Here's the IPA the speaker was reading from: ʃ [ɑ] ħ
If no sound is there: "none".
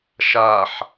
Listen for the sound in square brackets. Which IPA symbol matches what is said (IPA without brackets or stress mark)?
a